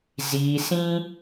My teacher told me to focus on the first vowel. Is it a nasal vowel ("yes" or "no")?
no